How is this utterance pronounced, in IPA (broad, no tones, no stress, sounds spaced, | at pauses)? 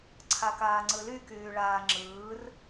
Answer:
ǀʰ a k aː ŋ͡ǀ ɯ l y k yː ɭ aː ŋ͡ǁ ɯː r